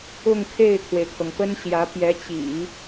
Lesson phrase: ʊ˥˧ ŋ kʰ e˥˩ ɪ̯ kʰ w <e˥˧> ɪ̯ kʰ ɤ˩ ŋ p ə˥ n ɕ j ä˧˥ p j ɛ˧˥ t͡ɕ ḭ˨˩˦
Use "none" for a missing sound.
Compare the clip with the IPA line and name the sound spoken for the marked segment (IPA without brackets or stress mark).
e˩